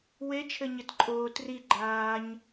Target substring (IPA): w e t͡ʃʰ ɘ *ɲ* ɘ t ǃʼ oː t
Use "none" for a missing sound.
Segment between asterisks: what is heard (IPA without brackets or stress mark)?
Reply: ɲ